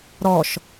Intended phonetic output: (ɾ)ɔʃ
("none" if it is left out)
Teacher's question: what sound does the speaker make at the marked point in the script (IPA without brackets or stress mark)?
ɾ